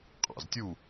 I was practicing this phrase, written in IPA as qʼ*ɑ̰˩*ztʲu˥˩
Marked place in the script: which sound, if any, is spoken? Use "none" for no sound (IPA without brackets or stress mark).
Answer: ɑ̰˩